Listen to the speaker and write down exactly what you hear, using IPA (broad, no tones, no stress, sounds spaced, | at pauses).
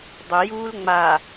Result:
dˤ ɵ j uː l ŋ͡m a